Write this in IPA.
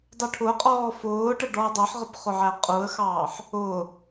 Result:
dˤ u ʈʰ ʊ qʼ ɔː f ʊː ʈ ə ɖ ɔ ə̯ dˤ ʌ ħ ʁ ə b χ ʊ ʕ æ qʼ u ə̯ x ɑː ħ | ʊː

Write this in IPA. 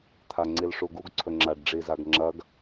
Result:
t̪ʰ a ŋ͡ǀ i l ʂ u ɡ u ɡ ǀʰ ɵ ŋ͡ǁ a ɖ ɖ͡ʐ i z a ɡ ŋ͡ǁ ɐ ɡ

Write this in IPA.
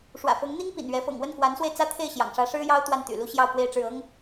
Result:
ʂ w ä̰˨˩ f ɤ˧˥ ŋ n̪ i˥ ŋ p ḭ˨˩ n ɥ ɛ˧˥ f ɤ̰˨˩ ŋ w ə˥˩ n k w a˧˥ n s w e˧ ɪ̯ t͡s ä˥ t̪ʰ e˥˩ ɪ̯ ɕ j ɑ̰˨˩ ŋ ʂ ä˧˥ ʂ ɻ̩˥ j ɑ˥ ʊ̯ t̪ w a˥˩ n t̪ y̰˨˩ l u˥ ɕ j ɑ˥˧ ʊ̯ k w e˥˧ ɪ̯ ʈ͡ʂ ɻ̩˥˩ ɤ˥ ŋ

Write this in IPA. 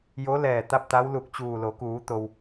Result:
j o˧˥ l ɛː˧˩ t̪ a˥˨ p̚ t̪ a˧˥ w l u˧˩ k̚ t͡ɕ uː˧˩ l o˩˧ k uː˩˧ t̪ o˩ w

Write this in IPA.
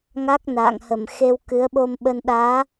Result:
ŋ a˦˥ k̚ n a̰ː˧˨ ŋ h ə˧˩ m x e˧ w k ɨ˨˦ ə̯ ɓ o˧ m ɓ ə˧ n ɗ aː˨˦

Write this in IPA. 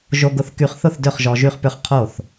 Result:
ʒ o˧ ɡ ʊ˧ θ k y˧ χ θ ʊ˥˩ θ d ø˥˩ χ ʒ ɔ˧ ʒ y˥˩ χ p ʏ˥˩ χ qʰ o˥˩ θ

